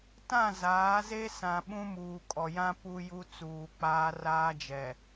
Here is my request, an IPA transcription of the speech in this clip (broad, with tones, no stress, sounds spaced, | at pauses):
t ã˦˨ z aː˨˦ z e˦ s ã˨ ɓ ũ˦ m uː˨ kʼ ɔ˨ j ã˦ p u˦ j u˦ t͡s uː˨ k͡p aː˦ r aː˦ d͡ʒ ɛ˨